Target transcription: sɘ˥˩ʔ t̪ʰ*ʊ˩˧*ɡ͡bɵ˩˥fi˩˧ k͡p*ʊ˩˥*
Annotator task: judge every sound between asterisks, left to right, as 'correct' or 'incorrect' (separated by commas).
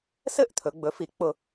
incorrect, incorrect